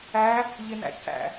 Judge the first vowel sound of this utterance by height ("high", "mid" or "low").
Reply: low